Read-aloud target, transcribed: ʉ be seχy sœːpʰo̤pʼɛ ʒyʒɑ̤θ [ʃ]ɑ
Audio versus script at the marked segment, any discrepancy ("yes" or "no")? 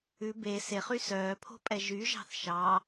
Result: no